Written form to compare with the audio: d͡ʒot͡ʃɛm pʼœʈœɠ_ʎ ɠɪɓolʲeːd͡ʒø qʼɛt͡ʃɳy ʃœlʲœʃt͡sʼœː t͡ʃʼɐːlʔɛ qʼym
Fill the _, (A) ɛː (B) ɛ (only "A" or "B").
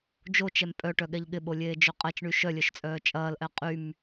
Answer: B